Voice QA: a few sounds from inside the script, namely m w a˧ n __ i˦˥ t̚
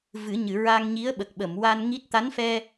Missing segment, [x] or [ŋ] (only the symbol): ŋ